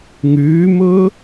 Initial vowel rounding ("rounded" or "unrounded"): rounded